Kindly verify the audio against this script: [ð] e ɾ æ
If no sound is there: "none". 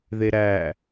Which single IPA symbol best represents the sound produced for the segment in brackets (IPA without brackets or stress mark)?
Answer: ð